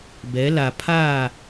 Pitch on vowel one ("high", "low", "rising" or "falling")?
rising